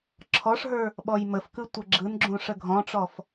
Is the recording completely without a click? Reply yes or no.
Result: no